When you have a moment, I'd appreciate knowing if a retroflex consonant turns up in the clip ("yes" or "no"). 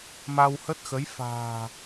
no